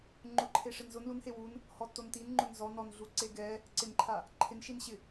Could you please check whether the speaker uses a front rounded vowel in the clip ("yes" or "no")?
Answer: no